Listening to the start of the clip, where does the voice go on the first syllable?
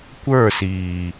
falling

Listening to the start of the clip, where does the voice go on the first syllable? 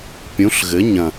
rising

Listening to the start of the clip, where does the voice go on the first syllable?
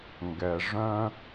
low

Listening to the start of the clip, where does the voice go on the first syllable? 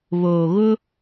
low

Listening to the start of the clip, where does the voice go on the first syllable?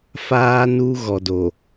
high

